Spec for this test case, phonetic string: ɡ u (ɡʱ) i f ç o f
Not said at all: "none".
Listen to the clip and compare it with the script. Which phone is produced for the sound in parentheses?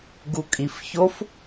kʼ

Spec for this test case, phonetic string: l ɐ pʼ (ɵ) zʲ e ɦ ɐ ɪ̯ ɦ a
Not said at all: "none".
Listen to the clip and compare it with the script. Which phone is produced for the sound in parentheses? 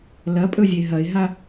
ɵ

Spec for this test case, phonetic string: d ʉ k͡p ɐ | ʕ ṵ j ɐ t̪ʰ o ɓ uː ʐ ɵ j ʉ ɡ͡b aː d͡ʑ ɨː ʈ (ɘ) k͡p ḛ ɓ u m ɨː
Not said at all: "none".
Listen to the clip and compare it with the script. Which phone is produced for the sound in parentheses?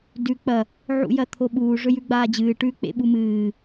ʉ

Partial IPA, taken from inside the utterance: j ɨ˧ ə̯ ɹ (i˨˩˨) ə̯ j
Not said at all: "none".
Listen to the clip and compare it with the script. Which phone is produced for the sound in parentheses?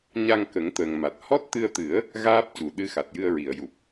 i˨˩˨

